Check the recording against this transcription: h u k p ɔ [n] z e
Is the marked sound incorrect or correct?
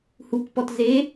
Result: incorrect